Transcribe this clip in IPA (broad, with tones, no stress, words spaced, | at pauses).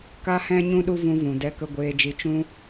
ka˦hɛ̃˦ɲũ˦ɗu˦ vũ˧vũ˨dɛ˧kə˧ ɡʷeː˧d͡ʒi˧ t͡ʃũ˦